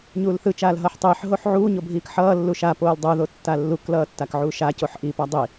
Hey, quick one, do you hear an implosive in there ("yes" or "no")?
no